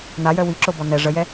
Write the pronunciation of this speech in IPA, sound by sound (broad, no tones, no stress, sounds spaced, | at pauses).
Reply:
n a j œ w i ǁ o b ɔ n ɛ ʐ ə j ɛ